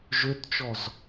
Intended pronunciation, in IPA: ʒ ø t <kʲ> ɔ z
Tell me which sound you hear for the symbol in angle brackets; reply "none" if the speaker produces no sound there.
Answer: t͡ʃ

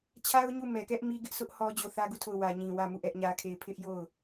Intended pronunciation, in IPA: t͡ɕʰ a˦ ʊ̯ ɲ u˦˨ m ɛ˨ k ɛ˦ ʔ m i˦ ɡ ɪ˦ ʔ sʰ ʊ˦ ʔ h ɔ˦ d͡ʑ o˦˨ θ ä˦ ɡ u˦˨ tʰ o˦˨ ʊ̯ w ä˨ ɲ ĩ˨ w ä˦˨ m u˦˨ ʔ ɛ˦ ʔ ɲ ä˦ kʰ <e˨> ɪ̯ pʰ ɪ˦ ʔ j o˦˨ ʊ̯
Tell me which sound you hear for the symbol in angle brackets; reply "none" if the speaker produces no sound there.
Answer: e˦˨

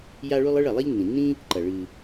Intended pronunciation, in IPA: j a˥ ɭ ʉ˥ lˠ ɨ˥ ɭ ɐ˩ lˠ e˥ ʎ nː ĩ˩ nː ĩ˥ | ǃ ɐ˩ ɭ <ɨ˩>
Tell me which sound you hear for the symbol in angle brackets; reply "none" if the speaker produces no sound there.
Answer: ɨ˩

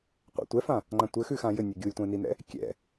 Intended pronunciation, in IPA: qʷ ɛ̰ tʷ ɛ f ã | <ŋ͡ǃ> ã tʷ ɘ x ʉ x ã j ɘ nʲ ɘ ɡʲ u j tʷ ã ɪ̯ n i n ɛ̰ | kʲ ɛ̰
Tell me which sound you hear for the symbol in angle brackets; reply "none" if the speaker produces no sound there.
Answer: ŋ͡ǃ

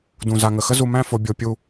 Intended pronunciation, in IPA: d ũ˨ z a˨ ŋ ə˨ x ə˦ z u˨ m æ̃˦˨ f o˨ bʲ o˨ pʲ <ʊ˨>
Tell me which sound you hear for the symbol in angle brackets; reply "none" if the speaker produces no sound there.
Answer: u˨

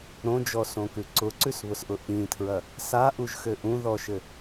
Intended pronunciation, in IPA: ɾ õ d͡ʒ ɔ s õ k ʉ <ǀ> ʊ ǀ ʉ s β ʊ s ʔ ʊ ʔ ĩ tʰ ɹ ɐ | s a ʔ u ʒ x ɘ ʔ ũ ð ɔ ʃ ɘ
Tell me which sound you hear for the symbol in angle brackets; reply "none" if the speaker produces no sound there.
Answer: ǀ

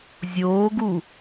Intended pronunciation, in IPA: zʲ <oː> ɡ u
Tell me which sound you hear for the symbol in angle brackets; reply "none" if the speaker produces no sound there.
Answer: oː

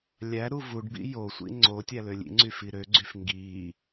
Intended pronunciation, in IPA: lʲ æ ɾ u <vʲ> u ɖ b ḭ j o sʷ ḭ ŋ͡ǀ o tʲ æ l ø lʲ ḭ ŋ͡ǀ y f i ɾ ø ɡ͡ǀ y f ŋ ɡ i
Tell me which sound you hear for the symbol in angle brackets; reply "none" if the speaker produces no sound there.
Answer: v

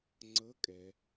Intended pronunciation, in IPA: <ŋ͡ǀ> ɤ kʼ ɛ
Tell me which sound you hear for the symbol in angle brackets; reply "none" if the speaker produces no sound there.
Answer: ŋ͡ǀ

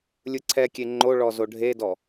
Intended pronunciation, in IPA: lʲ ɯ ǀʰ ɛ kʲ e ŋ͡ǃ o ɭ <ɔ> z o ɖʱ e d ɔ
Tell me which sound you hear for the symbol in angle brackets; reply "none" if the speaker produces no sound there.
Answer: ɔ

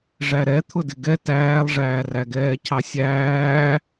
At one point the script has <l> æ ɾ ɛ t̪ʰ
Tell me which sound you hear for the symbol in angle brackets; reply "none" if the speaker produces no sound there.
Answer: ʐ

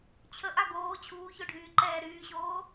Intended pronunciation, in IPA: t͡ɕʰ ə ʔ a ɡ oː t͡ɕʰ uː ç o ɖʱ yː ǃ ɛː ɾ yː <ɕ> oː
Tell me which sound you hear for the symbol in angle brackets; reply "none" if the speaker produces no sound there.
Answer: ɕ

